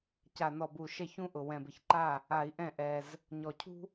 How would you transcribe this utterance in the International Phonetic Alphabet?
ca˨˩nɔ˨˩bu˨˩ ʃɛ˥˩çũ˥ʔʊ˨˩ wɛ̃˨˩bɪ˨˩çǃa˥˩ | a˧˩˧i̯ʔɛ̃˥˩ ʔɛ˨˩z | ɲɔ˨˩cʰṳ˥

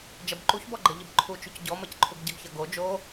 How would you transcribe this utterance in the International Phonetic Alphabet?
d͡ʒɐbǃuçbɔɡ͡ǃɐ ʎəbǃʰut͡ʃuc ɟɔmɐcǃʰuɡ ɟɐɡçɐɡo d͡ʒo

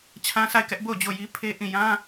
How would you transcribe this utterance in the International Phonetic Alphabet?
t͡ɕʰã˦sa˦˨ɪ̯kɛ˦ʔ bo˦˨ʊ̯d͡ʑo˦˨ji˦pʰe˦ ʔĩ˦˨ jã˦

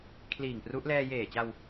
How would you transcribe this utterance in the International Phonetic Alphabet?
kʰliː˨˩ŋpru˦˥ʔ lɛː˧jeː˨˩t͡ɕa˧w

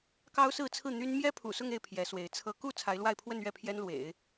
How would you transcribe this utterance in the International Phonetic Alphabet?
kɑ˥ʊ̯sɹ̩˥˧t͡sʰɹ̩˥˩ n̪y˥n mjɛ˥ pʰṵ˨˩sʊ˥˧ŋe˥˩ɪ̯ pʰjɛ˧˥swe˧˥ɪ̯t͡sʰɤ˥ ku˥˩ t͡sʰa˧˥ɪ̯lwa˥˧ɪ̯pʰwə˥˧nɥɛ˥˩ pʰjɛ˥nlwḛ˨˩˦ɪ̯

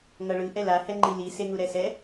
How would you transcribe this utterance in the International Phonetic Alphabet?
ŋʌɭɯ ʔɛlahɛ ŋ͡ǃili seŋuɾɛsɛ

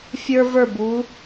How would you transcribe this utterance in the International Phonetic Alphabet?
fʲə˞˧və˞˧˩bu˩˧

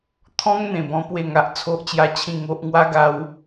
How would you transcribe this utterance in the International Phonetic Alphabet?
t̪ʰɔ̃˦ŋ n̪ẽ˧bɔ̃˦ pwe˥˧ŋa˦ʔ t͡sʰo˦ʔt͡ɕja˦t͡ɕʰĩ˥˧ ŋo˦ʔ ŋwa˦ɡa˧w

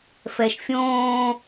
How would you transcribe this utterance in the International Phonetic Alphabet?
fɛʃ fʲõː

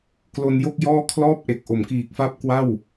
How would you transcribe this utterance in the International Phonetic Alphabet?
klo˧njo˥˩k̚ jɔː˥˩ kʰlɔː˥˩p̚ʔe˨˩k̚ ʔo˩˦mkiː˨˩k̚fa˦˥p̚ kwa˥˩w

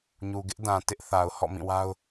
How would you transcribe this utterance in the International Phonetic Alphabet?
ɲu˨ɡɪ˦ʔdã˨tɪ˦ʔ θa˨ʊ̯ hɔ̰˦˨mĩ˦˨wa˦ʊ̯

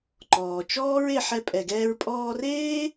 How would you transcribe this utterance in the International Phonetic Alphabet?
ǃɔː˩t͡ʃɔː˥ɹe˧ ħɛ˧pʼɛ˩ɡɛː˧ɹ pʼɔː˧reː˥

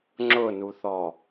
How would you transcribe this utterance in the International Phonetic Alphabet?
ŋ͡ǁʊnuθɔ

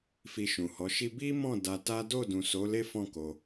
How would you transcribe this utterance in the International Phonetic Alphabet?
fi˧ʃũ˨hɔ˨˦ʃi˦ bi˦mɔ̃˦˨ da˧ta˦ do˦˨dũ˨so˨˦ le˦fɔ̃˦˨ ko˧

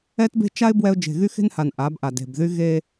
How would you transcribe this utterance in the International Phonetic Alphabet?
ɛ˦tbe̤˦ t͡ʃa˦ɪ̯ bwɛ˦ʊ̯ d͡ʒe̤˨ɣy˦xe̤˦nha˨n ʔa˨˦bʔa˨ de̤˨bðy˦ ɣe˦

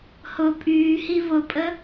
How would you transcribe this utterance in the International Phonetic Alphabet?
hʊ pʼyːhi vʊpʼə

